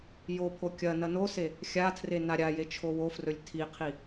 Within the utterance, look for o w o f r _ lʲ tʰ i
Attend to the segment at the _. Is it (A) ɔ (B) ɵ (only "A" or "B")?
B